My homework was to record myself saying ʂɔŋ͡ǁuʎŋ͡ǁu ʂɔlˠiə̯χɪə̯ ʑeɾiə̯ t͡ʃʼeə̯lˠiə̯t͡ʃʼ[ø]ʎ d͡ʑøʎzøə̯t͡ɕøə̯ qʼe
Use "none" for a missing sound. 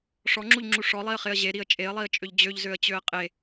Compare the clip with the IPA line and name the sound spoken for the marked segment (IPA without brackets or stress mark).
ø